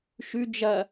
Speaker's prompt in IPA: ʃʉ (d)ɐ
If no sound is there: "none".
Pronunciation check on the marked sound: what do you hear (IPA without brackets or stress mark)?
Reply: d͡ʒ